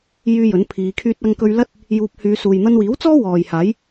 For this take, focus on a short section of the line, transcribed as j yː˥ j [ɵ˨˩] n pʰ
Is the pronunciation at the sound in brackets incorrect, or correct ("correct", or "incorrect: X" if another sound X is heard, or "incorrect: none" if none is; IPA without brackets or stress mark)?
incorrect: ɵ˨˥